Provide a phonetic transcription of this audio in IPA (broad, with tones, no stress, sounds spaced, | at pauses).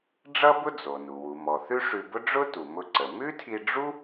ɖ͡ʐ ʌ˥ b ʊ˥ d͡z o˩ n u˩ w u˩ m ɔ˩ θ ʉ˥ ʂ ʉ˧ b ʊ˥ ɖ͡ʐ ʊ˥ t u˩ m ʊ˧ ǀ ə˩ m ʉ˥ tʰ i˧ ɖ͡ʐ u˥